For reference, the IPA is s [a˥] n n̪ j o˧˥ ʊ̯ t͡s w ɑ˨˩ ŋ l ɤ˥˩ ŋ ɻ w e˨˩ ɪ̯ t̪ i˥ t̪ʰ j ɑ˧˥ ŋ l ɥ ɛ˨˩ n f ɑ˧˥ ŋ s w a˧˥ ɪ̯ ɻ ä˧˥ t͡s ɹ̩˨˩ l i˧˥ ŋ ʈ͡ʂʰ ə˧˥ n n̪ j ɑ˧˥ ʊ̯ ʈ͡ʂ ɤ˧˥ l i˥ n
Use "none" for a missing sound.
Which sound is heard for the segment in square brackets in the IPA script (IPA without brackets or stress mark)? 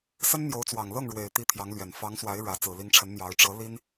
ə˥